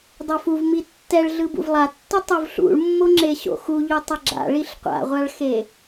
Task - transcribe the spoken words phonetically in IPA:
dˤ o f u v m i tː ɛ ɭ ɮ ɯ b ṵ v lˠ a tː u tˤ u v ɬ ṵ ɭ mː o ŋ͡ǁ e ɕ o̰ x u ʎ u tˤ ʌ ɡ͡ǁ a̰ ɭ i ɬ qʷ a̰ ʁʷ a ɭ x e

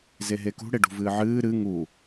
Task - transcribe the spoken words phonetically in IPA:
z e ɦ e k ṳ ɽ e ɖ ṳ v ɨː ʕ ɨː ɾ ɨ ŋ u

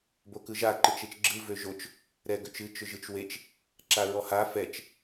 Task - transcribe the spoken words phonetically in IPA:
b o k ɯ ʒ a ǃ ɨ t͡ʃ e t͡ʃ ɡ͡ǁ ɯ v ø ʒ o t͡ʃ | ɾ ɛ ɡ ø t͡ʃ ɨ t͡ʃ ʏ ʒ ɯ t͡ʃ w e t͡ʃ | ǁ a ɹ ɔ h a f ɛ t͡ʃ

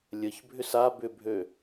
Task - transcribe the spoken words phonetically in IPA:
lʲ ə ç bʱ ʏ s a b ʏ bʱ ø

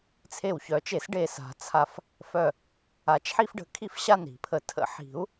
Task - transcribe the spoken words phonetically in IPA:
t͡sʰ e˧˩ w ç œ˨˩˦ t͡ʃ e˨˩˦ s ɖ e˧˩ s a̤˨˩˦ t͡sʰ a˧˩ f | f œ˧˩ | a˨˩˦ t͡ʃ ħ i˦ f ɖ ə̤˨˩˦ kʰ i˥˨ f ɕ a˥˨ n ɾ i̤˨˩˦ pʰ ə˨˩˦ tʰ ə̰˨˩˦ ħ i̤˨˩˦ u̯

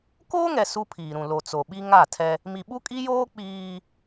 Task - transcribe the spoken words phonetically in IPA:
k oː˦ ŋ ɛ˨ s u˦ pʰ iː˨ ɾ ũ˨ l o˨ t͡s o˨ ɓ i˦ ŋ a˦˨ tʰ ɛ˦ | m i˨ ɓ u˦ kʼ i˦ j oː˦ k͡p iː˦

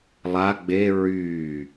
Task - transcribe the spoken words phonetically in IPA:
lˠ a ɡ͡b e ɹ yː

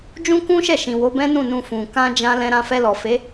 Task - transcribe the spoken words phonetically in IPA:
d͡ʒ ũ˦ k ũ˦ ʃ ɛ˦˨ ʃ ĩ˨ w o˨˦ b ɛ̃˦ n ũ˦˨ n ũ˧ f ũ˨ k ã˧ d͡ʒ ã˧ l ɛ̃˧ ɾ ã˧ f ɛ˧ l ɔ˨ f e˨˦

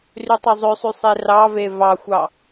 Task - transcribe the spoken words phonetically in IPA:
r y tˤ ø zˤ ø sˤ y sˤ e r ɑ v e v ɑ xʷ ɑ

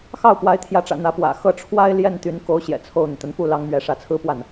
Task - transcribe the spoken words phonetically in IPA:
x ɑ˥˩ ʊ̯ p w a˧˥ ɪ̯ t̪ʰ j ä˧˥ ʈ͡ʂ ä̰˨˩ n̪ ä˧˥ p w ä̰˨˩ x ɤ˥˩ ʈ͡ʂʰ w a˥ ɪ̯ l j ɛ˥˩ n t̪ y˧˥ n k o˧˥ ʊ̯ ɕ j ɛ̰˨˩ t͡sʰ o˥˩ ʊ̯ n̪ y˩ t̪ ə˧˥ n f u˥˩ l ɑ˧˥ ŋ m ɥ ɛ˧˥ ʂ ä˧˥ t͡sʰ ɹ̩˥ p w a˥˩ n

